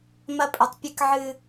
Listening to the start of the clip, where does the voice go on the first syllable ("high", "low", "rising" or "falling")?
high